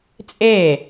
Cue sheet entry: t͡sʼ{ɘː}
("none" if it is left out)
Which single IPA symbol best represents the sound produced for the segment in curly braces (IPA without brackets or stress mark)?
eː